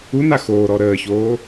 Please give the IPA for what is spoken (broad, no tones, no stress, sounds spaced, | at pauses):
u n a x oː ɾ ɔ ɾ əː ç oː